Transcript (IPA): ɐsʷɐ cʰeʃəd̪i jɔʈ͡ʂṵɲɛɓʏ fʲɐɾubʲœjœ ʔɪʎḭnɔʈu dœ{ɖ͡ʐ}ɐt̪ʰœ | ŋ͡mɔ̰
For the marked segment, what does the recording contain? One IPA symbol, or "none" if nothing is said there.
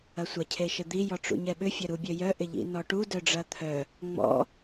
ɖ͡ʐ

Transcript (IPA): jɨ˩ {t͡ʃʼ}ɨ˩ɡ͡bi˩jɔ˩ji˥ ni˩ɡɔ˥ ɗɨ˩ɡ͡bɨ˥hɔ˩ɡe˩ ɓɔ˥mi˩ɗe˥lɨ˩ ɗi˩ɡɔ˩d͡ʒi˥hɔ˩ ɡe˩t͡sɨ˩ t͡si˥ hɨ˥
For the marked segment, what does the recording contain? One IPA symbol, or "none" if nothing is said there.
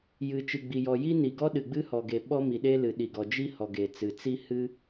t͡ʃ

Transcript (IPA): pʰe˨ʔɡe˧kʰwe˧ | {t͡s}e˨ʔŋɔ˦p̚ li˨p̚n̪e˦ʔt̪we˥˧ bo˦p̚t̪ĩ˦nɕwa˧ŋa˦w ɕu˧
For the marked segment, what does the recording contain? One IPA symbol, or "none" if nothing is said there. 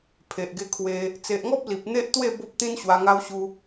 t͡s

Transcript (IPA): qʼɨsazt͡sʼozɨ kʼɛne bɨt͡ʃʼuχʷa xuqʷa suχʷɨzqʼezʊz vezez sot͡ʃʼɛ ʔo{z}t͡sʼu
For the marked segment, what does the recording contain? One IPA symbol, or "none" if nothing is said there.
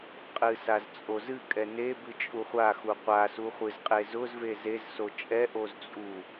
z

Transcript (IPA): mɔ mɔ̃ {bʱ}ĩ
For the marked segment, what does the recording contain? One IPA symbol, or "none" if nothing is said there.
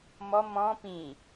p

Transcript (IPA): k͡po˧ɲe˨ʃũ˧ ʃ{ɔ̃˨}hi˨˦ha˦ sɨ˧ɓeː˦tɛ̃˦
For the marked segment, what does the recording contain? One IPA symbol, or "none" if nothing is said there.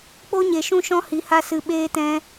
ɔ̃˦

